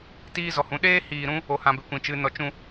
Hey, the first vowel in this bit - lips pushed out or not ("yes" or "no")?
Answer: no